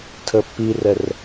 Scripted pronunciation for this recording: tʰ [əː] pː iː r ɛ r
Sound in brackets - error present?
no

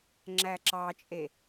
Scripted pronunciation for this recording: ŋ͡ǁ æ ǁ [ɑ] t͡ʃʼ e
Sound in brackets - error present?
no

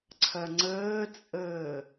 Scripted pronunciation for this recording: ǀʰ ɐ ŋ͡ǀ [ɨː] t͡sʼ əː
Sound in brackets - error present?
yes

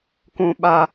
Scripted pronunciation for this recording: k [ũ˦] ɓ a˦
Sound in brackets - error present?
no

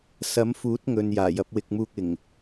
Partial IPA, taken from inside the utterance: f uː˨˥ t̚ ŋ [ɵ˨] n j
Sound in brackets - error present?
no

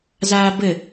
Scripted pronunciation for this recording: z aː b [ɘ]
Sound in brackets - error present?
no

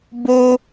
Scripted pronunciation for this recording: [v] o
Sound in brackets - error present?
yes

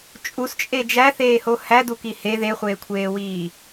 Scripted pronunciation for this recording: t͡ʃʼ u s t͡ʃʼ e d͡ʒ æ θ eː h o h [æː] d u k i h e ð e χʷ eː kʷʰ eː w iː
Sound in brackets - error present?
yes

